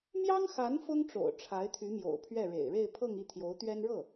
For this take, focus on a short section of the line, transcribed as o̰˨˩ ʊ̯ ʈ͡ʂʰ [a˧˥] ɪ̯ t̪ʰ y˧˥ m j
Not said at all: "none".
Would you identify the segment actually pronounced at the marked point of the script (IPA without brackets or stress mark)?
a˧˥